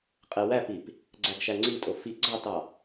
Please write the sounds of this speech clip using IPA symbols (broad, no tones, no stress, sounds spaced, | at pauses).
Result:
qʼ e w æ p i p | ɡ͡ǀ æ ɡ ʃ æ ŋ͡ǀ i tʼ o f i ɡ͡ǀ ɑ t ɑ